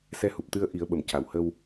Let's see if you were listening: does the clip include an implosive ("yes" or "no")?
yes